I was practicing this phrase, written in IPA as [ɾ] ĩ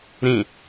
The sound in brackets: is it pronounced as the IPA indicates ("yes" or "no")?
yes